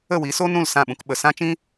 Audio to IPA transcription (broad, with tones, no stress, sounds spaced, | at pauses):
ə˦˨ w i˨˦ s o˦ n ũ˦˨ l s ã˦˨ ɓ ũ˧ k ɓ ə˨ s ã˦ t͡ʃ ĩ˦